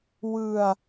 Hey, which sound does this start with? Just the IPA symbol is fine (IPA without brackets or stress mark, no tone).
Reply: w